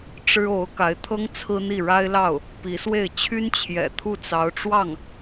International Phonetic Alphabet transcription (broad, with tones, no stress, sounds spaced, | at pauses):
ʈ͡ʂ ɻ̩˥ o˧˥ ʊ̯ k a˧˥ ɪ̯ t̪ʰ ɤ˥ ŋ t͡sʰ ɹ̩˥ n̪ i˥˩ ɻ a˥ ɪ̯ l ɑ˥˩ ʊ̯ | p i˧˥ s w e˥˩ ɪ̯ t͡ɕʰ y˥ n t͡ɕʰ j ɛ̰˨˩ t̪ʰ u˥˩ t͡s ɑ˧˥ ʊ̯ ʈ͡ʂ w ɑ˥˩ ŋ